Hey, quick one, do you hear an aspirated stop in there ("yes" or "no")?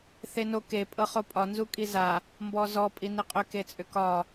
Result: no